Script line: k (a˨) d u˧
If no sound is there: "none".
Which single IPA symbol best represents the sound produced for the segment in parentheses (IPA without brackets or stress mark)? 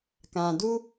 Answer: ã˨